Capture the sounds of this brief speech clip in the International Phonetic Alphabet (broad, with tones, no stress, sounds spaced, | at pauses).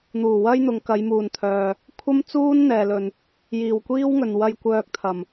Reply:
n̪ uː˨˩ w ɐ˥ j n̪ ʊ˨˧ ŋ k ɐ˨˧ j m uː˨ n t̪ʰ œː˨ | kʷʰ ɐ˥ m t͡s uː˥ n n̪ ɛː˨ l ɵ˨ n | j iː˨˩ w kʷ iː˥ w ŋ ɵ˨ n w ɐ˧ j kʷ œː˧ k̚ t̪ʰ ɐ˨˩ m